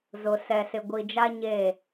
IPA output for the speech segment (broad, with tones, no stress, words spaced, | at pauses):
zʊ˨sɛ˨ sɪ˨ɡʷi˨d͡ʒa˦ ɲe˦˨